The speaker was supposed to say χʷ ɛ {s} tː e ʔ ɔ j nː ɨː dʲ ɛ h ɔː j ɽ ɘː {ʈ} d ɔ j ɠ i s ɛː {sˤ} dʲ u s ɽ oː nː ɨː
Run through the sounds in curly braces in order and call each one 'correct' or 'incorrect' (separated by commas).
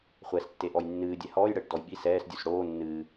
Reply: correct, correct, incorrect